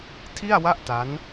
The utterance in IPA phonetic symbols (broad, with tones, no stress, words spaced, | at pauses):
tʰi˥˩a̯wa˥˩ʔ ta˦˥n